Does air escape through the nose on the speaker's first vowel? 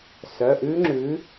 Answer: no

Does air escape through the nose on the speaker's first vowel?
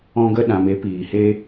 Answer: yes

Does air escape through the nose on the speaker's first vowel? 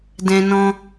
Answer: yes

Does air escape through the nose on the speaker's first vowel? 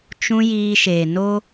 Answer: yes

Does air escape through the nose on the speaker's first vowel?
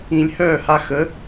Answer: yes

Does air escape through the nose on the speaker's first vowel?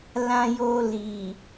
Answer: yes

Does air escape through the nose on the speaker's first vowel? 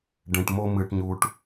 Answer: yes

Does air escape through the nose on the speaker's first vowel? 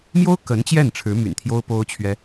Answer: no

